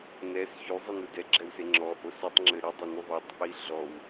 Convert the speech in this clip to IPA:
n ɛ s ç y zˤ i n u d ɛ ɡ͡ǁ ɛ w s e ŋ͡ǁ ɔ ʔ o s u tˤ ŋ͡ǁ ɘ ɾ ɨ dˤ e n u ðˤ e tˤ ʔ i ɮ ɔ w

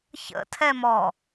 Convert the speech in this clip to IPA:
ç ə̰ tʰ ɛ m ɔ

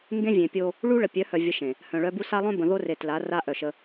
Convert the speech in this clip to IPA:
ŋ ɡ ẽ˦ vʲ ẽ˨ pʲ o˦ | ɭ u˦ ɭ ə˨ pʲ œ˨˦ h œ˨ vʲ ə˨ ʃ ẽ˨ | h œ̃˨ ɭ œ˦ b u˦ s a˦ lˠ œ̃˦ b ə̃˨ ð o˦ r e˨ t l a˨˦ r a˦ ʔ œ˨ ʃ ə˦

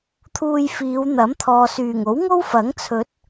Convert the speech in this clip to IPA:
t̪ʰ uː˧ j f iː˨˧ w n̪ ɐ˨˥ m t̪ʰ ɔː˨ s yː˨˩ ŋ o˨˥ w ŋ o˥ w f ɐ˨˥ ŋ t͡sʰ ɵ˨˥ t̚

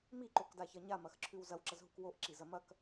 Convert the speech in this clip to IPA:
m i ǃ o k d a ç ɐ ɲ a m ɐ x ǁʰ ʉ w z ɐ w ǁ ɐ z ɦ u k w o ʔ ǁ i z ɐ m ɐ k

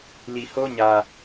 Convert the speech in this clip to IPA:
l i˨ h o˦ ɲ ä˨

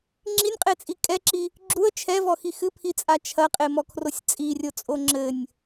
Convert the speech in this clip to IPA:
ŋ͡ǁ i nʲ qʼ e t͡sʼ i kʼ ɛ ǁ i | ɡ͡ǁ u ə̯ t͡ʃʰ ɛ v ɔ x i x ɨ pʰ i t͡sʼ a t͡ʃʰ ɐ qʼ e m ɔ kʰ r o sʲ t͡sʼ i rʲ o t͡sʼ o ŋ͡ǁ ɘ nʲ

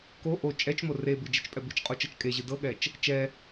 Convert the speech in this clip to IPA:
k o ʔ o t͡ʃʼ ɛ t͡ʃ m o r e b ɨ d͡ʒ e t͡ʃ pʼ ɛ b ɨ t͡ʃ qʼ o t͡ʃ ɤ t͡ʃ kʼ e ʑ ɨ d ɤ ɠ ɛ t͡ʃ | t͡ʃ ɛ

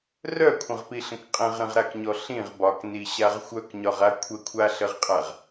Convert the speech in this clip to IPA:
r œ kʷʰ ə̃ ʁ p i ɬ ə̃ k qʼ ə̃ ʁ ɾ ə̃ ʁ ɾ a k ɲ ɔ ɬ ĩ ʁ b ɒ k n i ɕ a ʁ xʷ œ k ɲ ɒ ʁ a kʷʰ ə kʷʰ a ɬ ə ʁ qʼ a ʁ

